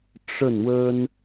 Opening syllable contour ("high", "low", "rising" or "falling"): falling